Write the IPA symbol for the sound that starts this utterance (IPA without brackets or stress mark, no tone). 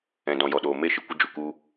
ɛ̃